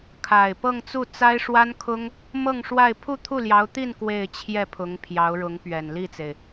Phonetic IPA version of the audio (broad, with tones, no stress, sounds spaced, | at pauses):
kʰ a˨˩ ɪ̯ p ɤ˥˧ ŋ t͡s u˥˩ t͡s a˥ ɪ̯ ʂ w a˥ n kʰ ʊ˥ ŋ | m ɤ˥˧ ŋ ʂ w a˥˧ ɪ̯ pʰ u˥˧ t̪ʰ u˥˩ l j ɑ˧˥ ʊ̯ t̪ i˥˧ n k w e˥˧ ɪ̯ t͡ɕʰ j ɛ˥˩ pʰ ʊ˧˥ ŋ pʰ j ɑ˧˥ ʊ̯ ɻ ʊ˧˥ ŋ p ɥ ɛ˨˩ n l i˥˩ t͡s e˩ ɪ̯